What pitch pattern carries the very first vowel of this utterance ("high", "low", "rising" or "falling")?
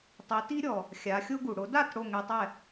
rising